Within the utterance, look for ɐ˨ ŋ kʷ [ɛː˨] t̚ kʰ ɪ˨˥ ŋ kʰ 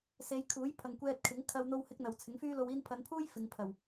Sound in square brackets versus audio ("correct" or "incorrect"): incorrect